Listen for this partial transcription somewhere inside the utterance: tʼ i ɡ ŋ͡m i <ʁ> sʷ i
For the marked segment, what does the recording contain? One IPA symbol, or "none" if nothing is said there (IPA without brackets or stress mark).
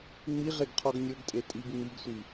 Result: ɡ